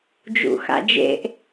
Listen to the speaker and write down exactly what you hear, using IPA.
d͡ʒ ṵ x a̰ d͡ʒ ḛ ʔ

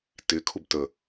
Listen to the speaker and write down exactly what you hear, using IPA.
t ɪ kʰ u b t ə

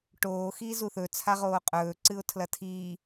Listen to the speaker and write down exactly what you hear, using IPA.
ʈ oː x iː z u θ ɵ t͡sʰ a ʁ oː qʼ ɵː ǀ ɨ ʊ̯ tʰ l ɐ tʰ iː

